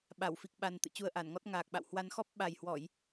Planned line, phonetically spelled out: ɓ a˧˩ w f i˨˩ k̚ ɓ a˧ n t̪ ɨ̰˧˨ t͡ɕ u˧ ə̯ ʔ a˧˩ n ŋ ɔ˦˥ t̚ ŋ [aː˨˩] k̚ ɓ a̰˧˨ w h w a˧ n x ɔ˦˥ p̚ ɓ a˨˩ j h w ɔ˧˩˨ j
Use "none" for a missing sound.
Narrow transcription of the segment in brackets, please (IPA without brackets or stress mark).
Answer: aː˨˩